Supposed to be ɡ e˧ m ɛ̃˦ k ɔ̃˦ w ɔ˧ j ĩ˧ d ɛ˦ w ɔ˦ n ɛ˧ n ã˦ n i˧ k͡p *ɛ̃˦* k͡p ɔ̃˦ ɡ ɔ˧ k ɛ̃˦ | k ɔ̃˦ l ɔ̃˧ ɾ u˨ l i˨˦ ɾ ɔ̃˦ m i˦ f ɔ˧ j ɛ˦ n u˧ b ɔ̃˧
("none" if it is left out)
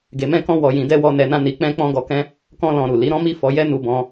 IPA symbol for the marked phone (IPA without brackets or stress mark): ɛ̃˦